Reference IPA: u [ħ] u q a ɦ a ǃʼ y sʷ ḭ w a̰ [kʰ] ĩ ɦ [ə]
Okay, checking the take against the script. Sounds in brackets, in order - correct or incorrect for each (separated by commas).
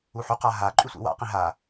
correct, incorrect, incorrect